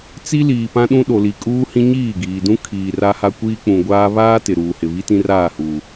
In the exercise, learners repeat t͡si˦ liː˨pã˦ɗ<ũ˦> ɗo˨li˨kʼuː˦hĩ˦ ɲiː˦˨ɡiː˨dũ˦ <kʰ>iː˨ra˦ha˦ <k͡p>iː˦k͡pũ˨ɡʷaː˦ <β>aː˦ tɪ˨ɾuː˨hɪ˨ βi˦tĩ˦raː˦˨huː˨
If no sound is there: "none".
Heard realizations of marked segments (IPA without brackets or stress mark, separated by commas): ũ˦, kʰ, kʷ, β